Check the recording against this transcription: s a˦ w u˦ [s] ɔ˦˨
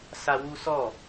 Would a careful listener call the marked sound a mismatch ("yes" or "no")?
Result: no